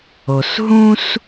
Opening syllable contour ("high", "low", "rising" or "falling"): low